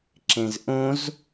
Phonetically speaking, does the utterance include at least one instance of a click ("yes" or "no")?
yes